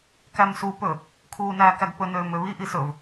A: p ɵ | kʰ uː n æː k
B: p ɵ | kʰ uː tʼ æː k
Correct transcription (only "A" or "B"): A